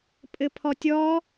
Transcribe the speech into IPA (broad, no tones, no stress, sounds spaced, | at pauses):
pʼ ɘ pʰ ɔ tʲ ɔ